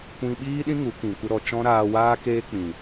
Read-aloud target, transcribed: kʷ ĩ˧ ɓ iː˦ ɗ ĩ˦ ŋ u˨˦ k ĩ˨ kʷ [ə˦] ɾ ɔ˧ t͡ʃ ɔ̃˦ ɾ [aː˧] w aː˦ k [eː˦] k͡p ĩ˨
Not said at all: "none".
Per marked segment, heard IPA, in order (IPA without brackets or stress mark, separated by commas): ə˦, aː˧, eː˦